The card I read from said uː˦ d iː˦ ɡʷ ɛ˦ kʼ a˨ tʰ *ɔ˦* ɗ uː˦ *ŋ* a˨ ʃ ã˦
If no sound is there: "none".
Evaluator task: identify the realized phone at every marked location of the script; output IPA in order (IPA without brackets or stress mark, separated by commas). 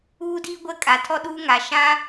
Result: ɔ˦, ŋ